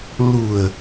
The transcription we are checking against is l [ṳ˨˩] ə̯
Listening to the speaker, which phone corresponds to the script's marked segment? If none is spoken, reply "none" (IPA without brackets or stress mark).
ṳ˨˩